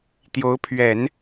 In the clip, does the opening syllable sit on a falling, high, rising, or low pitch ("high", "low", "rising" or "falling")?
rising